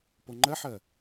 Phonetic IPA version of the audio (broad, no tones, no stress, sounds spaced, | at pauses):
p o ŋ͡ǃ ɜ ħ ɜ